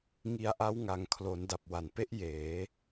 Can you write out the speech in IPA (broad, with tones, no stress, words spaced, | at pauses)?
ŋi˧a̯ʔa˦˥wŋa˨˩ŋ kʰlo˩˦nda˨˩p̚ wa˨˩npe˦˥ʔ jeː˩˦